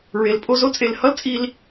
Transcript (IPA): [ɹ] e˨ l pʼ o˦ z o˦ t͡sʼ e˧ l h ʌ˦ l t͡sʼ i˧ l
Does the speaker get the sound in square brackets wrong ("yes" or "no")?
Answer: no